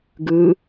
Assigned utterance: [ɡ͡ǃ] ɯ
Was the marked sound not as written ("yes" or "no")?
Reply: yes